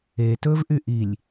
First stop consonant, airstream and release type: plain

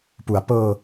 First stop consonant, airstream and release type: plain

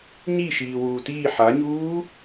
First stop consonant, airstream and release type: plain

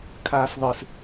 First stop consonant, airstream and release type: aspirated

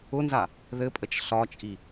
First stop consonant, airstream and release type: ejective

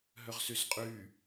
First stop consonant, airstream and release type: ejective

